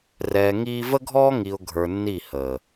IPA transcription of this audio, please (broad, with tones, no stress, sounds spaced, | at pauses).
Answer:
r ɛː˨ ŋ iː˦ v ə˦ ɡʱ ɔː˦ ŋ i˨ ʊ̯ ɡʱ ə˞˨ nː i˦˨ h əː˨